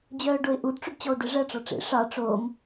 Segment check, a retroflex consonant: present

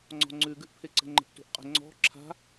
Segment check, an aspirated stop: present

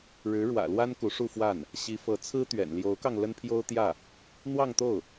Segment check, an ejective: absent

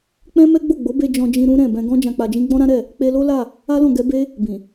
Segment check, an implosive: absent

